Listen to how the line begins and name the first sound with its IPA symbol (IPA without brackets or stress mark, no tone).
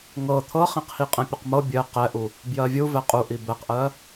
ŋ